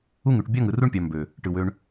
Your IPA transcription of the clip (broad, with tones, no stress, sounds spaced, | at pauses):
u˦ ŋ y˨ ʈ bʲ ɑ˦ ŋ ɯ˨ r u˦ ɳ pʲ ɑ˨ m b ø˨ | ʈ ɯ˨ w ø˦ ɳ